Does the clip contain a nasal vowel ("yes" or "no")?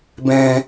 yes